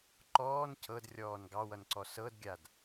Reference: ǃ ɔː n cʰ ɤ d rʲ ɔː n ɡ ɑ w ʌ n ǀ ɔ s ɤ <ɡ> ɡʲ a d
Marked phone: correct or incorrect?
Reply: incorrect